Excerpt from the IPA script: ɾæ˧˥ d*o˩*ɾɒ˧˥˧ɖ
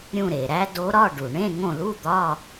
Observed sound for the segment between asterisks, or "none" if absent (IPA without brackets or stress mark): o˧˥